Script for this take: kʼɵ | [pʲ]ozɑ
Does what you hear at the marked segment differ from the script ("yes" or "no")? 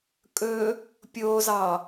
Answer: no